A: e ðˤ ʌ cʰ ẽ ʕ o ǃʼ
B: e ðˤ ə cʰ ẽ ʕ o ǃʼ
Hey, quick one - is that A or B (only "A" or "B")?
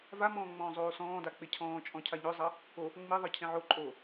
A